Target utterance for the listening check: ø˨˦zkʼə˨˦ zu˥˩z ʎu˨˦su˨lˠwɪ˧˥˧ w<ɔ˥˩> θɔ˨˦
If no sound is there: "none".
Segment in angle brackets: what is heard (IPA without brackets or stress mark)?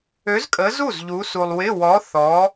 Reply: ɔ˨˦